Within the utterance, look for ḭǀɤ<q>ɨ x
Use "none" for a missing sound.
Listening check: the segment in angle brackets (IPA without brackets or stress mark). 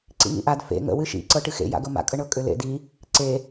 ʈ